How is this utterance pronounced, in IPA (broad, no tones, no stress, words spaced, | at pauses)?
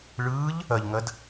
ɭɯːʎ | ɐʎŋɐd